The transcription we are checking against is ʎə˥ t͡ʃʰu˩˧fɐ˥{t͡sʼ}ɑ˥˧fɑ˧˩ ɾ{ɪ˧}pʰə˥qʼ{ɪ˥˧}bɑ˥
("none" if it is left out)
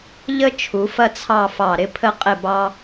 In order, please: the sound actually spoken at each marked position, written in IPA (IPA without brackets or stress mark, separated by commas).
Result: t͡sʰ, ɪ˥, ɪ˥˧